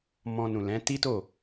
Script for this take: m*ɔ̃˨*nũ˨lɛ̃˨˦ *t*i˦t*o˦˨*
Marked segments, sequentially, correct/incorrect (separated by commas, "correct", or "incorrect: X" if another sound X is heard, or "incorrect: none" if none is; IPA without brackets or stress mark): incorrect: ɔ̃˧, correct, correct